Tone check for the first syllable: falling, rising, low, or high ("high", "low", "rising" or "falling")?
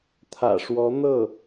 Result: low